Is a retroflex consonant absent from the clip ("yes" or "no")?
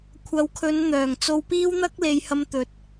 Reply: yes